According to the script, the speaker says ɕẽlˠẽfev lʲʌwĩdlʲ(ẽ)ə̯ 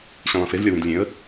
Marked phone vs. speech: correct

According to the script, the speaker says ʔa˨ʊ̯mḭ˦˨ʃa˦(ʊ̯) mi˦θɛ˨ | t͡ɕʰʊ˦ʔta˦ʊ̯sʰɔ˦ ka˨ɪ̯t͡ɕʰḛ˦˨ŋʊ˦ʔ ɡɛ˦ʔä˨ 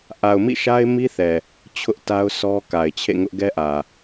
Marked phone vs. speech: incorrect: ɪ̯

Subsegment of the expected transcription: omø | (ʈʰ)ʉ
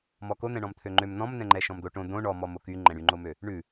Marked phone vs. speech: incorrect: ɳ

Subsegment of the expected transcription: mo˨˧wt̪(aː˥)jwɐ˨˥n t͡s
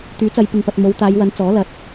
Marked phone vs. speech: incorrect: aː˨˧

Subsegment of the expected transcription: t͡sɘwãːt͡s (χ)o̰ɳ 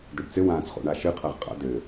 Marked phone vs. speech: correct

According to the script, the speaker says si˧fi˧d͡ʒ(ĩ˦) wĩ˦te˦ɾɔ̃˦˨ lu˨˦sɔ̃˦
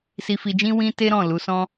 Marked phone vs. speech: correct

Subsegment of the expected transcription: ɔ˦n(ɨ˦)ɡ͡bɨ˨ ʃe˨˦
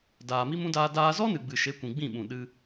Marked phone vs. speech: incorrect: ɨ˨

